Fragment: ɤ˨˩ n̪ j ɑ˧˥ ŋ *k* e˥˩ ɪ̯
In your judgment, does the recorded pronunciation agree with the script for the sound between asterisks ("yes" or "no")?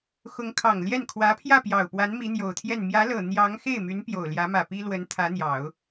no